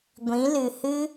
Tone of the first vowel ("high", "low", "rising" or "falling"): rising